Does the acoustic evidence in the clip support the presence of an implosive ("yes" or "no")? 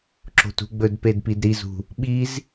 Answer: yes